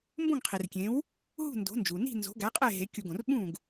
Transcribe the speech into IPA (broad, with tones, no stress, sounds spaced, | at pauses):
m b õ˥˩ ŋ qʰ i˩ r kʲ ẽ˩˥ w | ɦ ṳ˥˩ n d o̤˩˥ n d͡ʒ u˩ n i̤˥˩ n z o̤˩˥ ɡ æ˩˥ qʼ e˥˩ ɦ e˩˥ kʲ u˧˩˧ ɡ õ˩ r ɓ ũ˥˩ ɡ